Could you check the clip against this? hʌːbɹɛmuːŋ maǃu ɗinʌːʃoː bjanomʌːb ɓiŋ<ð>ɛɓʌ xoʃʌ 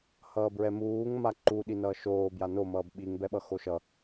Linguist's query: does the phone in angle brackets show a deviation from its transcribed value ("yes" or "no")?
yes